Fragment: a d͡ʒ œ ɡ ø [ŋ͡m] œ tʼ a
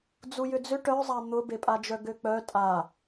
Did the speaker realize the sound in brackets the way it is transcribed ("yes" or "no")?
no